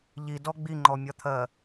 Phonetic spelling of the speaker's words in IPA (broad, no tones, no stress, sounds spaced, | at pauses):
ʎ i d ɔ ɡ͡b i ŋ͡ǃ ɔ mʲ ɒ t̪ʰ ɜ